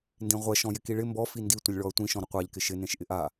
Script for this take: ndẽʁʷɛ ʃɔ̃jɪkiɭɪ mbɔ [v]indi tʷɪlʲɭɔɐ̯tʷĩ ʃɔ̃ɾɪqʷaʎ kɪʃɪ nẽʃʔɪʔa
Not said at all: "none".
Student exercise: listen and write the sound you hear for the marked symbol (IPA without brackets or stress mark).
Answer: f